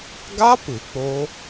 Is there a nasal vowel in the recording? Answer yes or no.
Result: no